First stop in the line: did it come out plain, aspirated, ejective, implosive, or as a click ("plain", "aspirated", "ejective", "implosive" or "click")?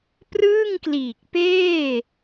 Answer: plain